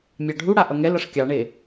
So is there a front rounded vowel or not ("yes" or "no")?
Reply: no